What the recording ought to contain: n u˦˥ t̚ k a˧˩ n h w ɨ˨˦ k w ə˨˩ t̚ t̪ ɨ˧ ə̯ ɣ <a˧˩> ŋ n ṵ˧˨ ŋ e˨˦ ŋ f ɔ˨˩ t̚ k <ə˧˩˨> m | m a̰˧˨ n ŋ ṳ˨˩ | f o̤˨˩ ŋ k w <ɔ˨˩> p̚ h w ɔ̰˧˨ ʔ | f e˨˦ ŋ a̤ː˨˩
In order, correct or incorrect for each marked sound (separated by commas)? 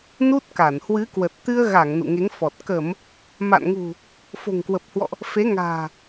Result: correct, correct, incorrect